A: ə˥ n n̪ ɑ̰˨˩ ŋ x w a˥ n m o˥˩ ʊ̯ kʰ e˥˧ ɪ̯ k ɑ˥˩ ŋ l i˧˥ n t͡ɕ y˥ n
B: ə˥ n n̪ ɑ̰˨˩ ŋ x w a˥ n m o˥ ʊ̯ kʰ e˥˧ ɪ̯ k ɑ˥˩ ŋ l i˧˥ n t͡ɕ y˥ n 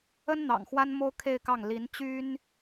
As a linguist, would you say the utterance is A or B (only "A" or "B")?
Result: B